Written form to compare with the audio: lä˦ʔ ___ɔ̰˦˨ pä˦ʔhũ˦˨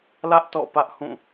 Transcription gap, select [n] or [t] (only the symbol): t